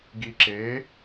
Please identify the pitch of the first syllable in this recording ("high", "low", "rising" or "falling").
low